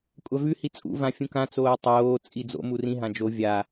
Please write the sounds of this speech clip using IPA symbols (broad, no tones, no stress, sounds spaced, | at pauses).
kʷʼ a v ʉ h i t͡sʼ ṵ v ã fʲ ũ k ã t͡s oː tˤ oː t͡sʼ i d͡z o̰ m u r ĩ ɦ ã d͡ʒ o vʲ a